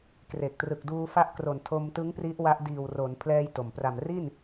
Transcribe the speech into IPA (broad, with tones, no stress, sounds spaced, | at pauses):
k r e˨˩ k̚ t r ɯ˨˩ k̚ d uː˧ f a˦˥ ʔ k r o˨˩ n tʰ o˧ m t ɯ˦˥ ŋ p r i˦˥ ʔ w a˦˥ ʔ d iː˨˩ w r o˩˦ n pʰ l ɛː˧ j t o˨˩ m p r a˨˩ m r i˥˩ n